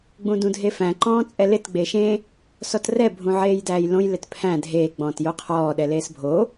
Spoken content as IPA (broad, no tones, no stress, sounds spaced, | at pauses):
ɡ͡b ũ d ũ dʱ e f æ̃ ǃ ɔ̃ː t͡sʼ ɛ l ɪ t ɡ͡b e ʃ ẽ | s ɔ t r ɛ bʱ ũ ʕ eː j d æː j l õ j l ɪ t pʰ æ̃ dʱ eː ɡ͡b ɔ̃ː t j o qʰ ɔː ɗ ɛ l eː s bʱ o